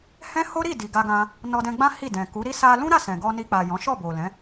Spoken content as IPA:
h ɛ̃˦ h o˦ ɾ i˦˨ d i˨ ɡ a˧ ɡ ã˧ | n ɔ˧ d ɛ̃˧ ɡ͡b ã˦ h i˦˨ d ɛ̃˨ k u˨˦ ɾ i˦ s a˧ l ũ˦ ɾ a˦˨ s ɛ̃˨ ɡ ɔ˧ n i˧ k͡p a˨ j ɔ̃˨˦ ʃ ɔ˦˨ b o˨ l ɛ̃˨˦

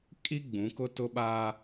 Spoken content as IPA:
kʼ i˦ ɡ͡b ũ˨˦ k ʊ˦ t ʊ˦ ɓ aː˦

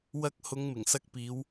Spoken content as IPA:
w ɐ˧ k̚ h ʊ˨˧ ŋ m ɪ˨˩ ŋ s ɐ˧ k̚ p iː˨˧ w

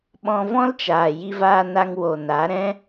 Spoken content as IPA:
ɓ ɔ̃˧ v ɔ̃˦ l t͡ʃ aː˨ j i˧ v aː˧ n a˧ ŋ w o˨ n a˨˦ ɾ ɛ̃˦

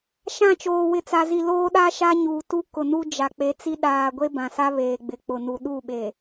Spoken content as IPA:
ʃ ã˦˨ t͡ʃ oː˨ w ɪ˨ t͡s a˨ z i˨ l oː˦ ɗ a˦ ʃ a˦ ɲ uː˨ t u˦ k ʊ˨ n u˦ d͡ʒ a˨ k͡p e˨˦ t͡s i˦ ɗ aː˨ ɡʷ e˦ b ã˨ s a˦ β eː˨ ɡ͡b ɪ˨ k͡p ʊ˨ n u˨ ɗ u˦˨ ɓ e˨

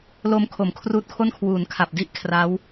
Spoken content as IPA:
l o˧ m kʰ o˩˦ m kʰ r uː˦˥ t̚ kʰ o˥˩ n kʰ w uː˩˦ n kʰ a˨˩ p̚ d i˦˥ ʔ kʰ r a˦˥ w

